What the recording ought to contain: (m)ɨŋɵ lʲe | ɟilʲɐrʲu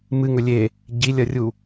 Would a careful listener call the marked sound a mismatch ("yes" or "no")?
no